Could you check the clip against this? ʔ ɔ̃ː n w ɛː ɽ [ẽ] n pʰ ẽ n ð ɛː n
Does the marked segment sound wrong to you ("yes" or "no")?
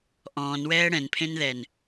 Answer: yes